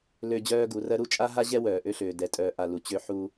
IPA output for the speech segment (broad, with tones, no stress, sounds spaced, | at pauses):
l ø˦ d͡ʑ œː˦ ɡ u˨˦ r ɜ˦ ɾ u˦ t͡ʃʼ a˦ ɦ a˦ ʑ ɛ˦ w œː˨ ʔ ø˦ ɬ øː˨ d ɛ˨ tʼ œː˨ ʔ a˨ l u˨ t͡ɕ ø˦ ħ u˦